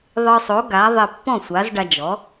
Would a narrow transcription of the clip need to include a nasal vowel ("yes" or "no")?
yes